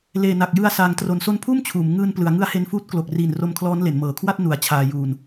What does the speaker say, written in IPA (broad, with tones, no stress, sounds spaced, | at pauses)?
l eː˨˩ n a˨˩ k̚ j ɯ˧ a̯ s aː˩˦ ŋ t r o˩˦ n s o˦˥ n pʰ uː˥˩ m t͡ɕʰ uː˩˦ m ŋ ɯː˧ n p l ɯ˩˦ a̯ ŋ ɯ˦˥ a̯ h e˧ n f uː˦˥ t̚ k l o˨˩ k̚ r iː˨˩ n r o˧ m kʰ l ɔː˦˥ n l e˩˦ n m ɤː˨˩ kʰ w a˥˩ t̚ n u˩˦ a̯ t͡ɕʰ aː˧ j uː˧ n